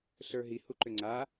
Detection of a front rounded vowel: present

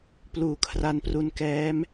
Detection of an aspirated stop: present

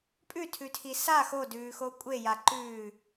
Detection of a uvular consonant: absent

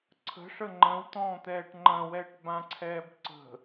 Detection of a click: present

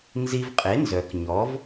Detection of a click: absent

